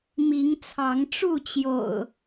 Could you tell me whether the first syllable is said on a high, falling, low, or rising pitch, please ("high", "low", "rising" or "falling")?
rising